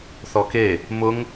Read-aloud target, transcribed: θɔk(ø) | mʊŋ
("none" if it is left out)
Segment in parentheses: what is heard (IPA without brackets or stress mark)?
e